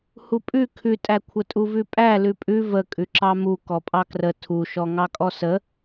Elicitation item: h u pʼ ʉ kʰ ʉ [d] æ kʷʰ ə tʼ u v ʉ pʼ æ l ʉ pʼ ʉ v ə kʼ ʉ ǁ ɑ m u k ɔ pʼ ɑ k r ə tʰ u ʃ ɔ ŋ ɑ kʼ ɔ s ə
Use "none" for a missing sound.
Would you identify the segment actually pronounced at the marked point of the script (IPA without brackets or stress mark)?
tʼ